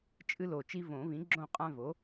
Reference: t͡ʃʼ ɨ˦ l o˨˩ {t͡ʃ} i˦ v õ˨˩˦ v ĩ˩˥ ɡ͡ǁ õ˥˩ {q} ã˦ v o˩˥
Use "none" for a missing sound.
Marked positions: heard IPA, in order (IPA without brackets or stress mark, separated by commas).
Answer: t͡ʃ, qʼ